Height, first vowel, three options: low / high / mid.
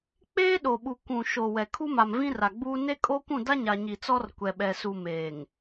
mid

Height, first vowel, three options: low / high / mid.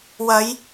low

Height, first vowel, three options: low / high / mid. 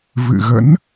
high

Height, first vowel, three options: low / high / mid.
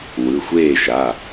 high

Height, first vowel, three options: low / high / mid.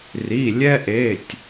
high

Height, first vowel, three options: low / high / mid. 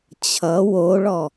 mid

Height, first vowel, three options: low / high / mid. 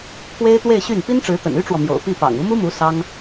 mid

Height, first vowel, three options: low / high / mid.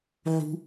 high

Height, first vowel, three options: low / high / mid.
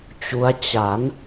high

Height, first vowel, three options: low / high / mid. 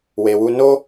mid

